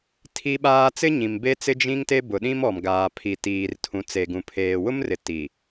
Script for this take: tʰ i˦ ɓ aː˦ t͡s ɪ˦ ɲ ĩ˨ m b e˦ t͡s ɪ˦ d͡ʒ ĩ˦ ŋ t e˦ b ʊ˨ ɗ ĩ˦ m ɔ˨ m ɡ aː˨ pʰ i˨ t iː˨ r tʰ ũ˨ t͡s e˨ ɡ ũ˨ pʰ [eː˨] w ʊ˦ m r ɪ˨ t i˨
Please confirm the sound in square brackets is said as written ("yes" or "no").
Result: yes